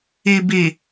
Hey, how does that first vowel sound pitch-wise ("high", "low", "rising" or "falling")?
low